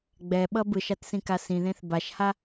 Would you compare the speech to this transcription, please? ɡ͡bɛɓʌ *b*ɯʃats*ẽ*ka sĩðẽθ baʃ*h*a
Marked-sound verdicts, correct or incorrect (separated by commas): correct, incorrect, correct